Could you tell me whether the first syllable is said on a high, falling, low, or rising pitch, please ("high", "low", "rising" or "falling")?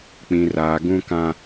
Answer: low